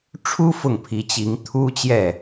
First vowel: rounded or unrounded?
rounded